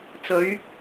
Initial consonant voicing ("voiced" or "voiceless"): voiceless